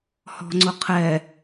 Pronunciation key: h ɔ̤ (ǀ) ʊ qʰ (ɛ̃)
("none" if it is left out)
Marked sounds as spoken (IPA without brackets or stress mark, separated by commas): ŋ͡ǀ, ɛ